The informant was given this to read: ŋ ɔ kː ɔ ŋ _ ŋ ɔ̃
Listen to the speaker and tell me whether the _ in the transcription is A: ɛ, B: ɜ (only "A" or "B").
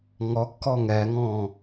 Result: A